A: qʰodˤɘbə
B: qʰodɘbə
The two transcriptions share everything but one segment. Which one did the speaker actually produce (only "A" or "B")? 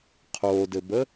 B